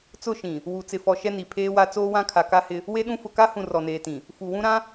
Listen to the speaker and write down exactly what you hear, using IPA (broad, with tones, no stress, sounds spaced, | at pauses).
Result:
t͡s ʊ˦˨ ʃ ĩ˨ | w u˨ t͡s ɪ˨ f ɔ˨ ʃ ɛ˦ n i˨ pʰ eː˦ w a˦ t͡s oː˦ w ã˦ kʰ a˨ k a˦ h ɪ˦ | w e˦ ɗ ũ˦ f ʊ˨ k a˦ h ũ˨ r ɔ˨ n eː˨ t ĩ˨ | f u˨ w ũ˦ ɾ ã˦